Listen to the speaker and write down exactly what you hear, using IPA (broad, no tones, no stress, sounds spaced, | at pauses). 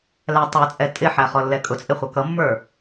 l æ tˤ ə˞ t͡sʼ ɛ tʼ ɪ ħ æ χ ɔ lː ɛ kʼ ʊ t͡sʼ ɪ χʷ ʌ k ʌ mː ə˞